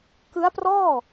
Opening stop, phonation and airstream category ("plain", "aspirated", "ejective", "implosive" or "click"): plain